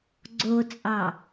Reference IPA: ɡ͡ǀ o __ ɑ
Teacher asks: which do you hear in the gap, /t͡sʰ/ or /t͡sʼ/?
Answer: t͡sʼ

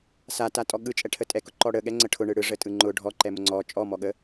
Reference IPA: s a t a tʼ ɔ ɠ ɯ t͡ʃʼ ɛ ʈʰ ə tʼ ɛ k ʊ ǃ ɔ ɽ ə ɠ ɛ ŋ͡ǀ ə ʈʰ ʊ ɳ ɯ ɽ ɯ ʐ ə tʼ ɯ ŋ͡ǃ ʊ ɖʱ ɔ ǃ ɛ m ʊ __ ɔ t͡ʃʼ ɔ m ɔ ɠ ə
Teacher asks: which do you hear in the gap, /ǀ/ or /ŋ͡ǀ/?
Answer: ŋ͡ǀ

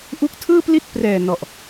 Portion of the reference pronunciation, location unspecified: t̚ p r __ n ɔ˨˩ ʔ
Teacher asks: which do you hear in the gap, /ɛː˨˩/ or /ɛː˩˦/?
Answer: ɛː˨˩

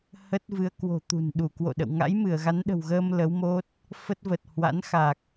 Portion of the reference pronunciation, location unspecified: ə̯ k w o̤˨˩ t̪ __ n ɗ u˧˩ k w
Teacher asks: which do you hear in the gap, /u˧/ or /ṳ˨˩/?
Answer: ṳ˨˩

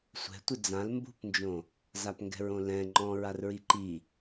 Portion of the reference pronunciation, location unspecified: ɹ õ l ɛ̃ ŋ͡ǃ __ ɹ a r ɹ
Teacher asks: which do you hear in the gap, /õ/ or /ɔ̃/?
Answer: ɔ̃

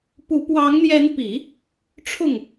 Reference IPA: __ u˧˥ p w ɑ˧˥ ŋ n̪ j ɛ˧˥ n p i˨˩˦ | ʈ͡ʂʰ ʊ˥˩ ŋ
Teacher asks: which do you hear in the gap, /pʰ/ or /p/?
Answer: p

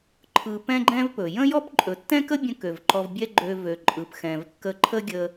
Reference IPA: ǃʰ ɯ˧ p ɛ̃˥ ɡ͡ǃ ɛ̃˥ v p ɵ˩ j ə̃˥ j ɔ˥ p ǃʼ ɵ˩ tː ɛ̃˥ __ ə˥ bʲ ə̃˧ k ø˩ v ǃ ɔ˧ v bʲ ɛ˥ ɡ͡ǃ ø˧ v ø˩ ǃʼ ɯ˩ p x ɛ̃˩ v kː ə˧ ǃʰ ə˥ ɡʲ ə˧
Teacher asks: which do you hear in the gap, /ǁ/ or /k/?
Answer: k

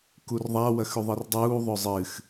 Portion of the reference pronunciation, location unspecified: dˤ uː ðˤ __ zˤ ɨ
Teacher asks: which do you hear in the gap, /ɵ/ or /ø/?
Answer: ɵ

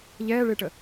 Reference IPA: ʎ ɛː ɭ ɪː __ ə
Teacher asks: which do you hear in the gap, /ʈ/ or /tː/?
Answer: ʈ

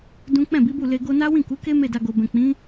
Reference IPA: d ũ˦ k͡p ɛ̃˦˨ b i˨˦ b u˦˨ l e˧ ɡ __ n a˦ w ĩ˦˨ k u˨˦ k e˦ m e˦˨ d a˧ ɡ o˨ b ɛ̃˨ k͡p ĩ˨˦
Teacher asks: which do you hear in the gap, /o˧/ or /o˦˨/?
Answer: o˧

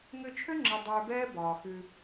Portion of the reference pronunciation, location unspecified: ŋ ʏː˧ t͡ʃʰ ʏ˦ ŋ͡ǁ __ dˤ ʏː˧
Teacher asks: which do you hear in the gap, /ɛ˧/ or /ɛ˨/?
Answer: ɛ˧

